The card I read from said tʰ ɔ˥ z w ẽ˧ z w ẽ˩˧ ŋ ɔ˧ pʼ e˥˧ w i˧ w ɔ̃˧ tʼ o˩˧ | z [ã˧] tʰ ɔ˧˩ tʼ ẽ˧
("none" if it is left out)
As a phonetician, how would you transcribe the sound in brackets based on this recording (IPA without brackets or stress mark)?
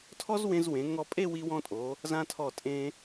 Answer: ã˧